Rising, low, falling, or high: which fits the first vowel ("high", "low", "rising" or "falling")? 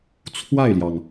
falling